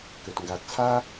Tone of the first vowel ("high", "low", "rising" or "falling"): low